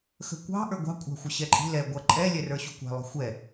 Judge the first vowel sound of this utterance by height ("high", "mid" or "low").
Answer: mid